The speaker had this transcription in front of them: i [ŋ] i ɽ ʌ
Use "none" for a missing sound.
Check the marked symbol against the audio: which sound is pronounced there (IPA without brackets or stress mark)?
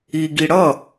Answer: ɡ